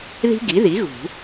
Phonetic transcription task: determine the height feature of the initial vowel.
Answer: high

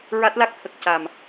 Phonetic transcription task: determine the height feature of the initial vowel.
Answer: low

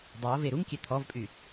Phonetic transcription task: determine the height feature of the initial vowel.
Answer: mid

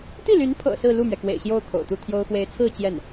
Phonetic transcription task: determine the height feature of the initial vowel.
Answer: high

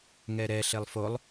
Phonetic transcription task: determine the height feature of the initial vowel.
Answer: mid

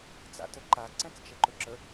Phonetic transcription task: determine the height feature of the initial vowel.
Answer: low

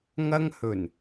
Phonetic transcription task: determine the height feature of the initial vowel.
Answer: low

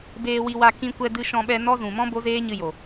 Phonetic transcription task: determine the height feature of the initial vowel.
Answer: mid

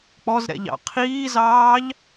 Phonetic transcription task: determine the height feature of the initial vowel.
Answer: mid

